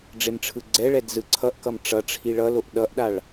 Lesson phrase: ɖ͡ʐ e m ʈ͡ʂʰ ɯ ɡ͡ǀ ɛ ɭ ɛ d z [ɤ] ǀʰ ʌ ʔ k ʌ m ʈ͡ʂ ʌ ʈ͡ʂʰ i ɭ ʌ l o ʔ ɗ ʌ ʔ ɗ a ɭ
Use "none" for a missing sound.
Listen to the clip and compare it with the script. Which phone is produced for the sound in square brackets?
ɯ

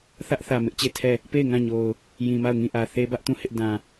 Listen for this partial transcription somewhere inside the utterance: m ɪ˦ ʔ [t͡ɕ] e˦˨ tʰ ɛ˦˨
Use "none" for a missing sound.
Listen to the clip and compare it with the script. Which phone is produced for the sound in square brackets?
t͡ɕ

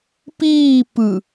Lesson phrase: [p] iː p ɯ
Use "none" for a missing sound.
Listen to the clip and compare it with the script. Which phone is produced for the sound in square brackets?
p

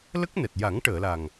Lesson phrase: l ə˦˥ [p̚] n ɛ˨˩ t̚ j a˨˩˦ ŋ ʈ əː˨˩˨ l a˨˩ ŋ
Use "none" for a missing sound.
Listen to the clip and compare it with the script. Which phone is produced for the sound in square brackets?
k̚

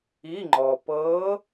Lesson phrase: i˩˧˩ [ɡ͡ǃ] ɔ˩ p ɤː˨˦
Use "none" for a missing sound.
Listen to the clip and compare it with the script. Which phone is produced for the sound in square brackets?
ŋ͡ǃ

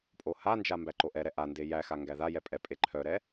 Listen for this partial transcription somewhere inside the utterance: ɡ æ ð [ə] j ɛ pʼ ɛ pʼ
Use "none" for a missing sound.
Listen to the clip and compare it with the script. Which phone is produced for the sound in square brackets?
a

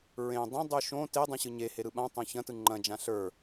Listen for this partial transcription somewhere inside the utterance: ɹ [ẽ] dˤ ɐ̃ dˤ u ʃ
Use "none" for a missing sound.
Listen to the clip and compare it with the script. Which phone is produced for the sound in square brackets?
ẽ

